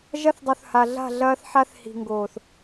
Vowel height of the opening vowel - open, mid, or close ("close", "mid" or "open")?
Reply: open